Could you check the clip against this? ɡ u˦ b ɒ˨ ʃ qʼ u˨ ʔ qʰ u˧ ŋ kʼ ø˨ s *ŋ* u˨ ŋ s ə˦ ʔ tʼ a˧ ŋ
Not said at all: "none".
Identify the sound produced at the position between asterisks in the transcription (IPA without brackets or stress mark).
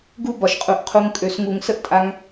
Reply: ŋ